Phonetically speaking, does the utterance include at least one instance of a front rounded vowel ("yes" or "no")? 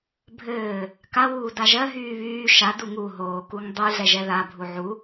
yes